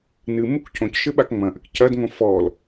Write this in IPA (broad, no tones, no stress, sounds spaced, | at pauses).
n ɨ m u k cʰ õ c ʃ ɘ ɓ a k ŋ͡m ɐ̃ ʔ ɘ k cʰ ɐ d ŋ õ f ɔ l